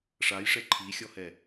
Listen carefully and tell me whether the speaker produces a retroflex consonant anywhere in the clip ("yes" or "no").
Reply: yes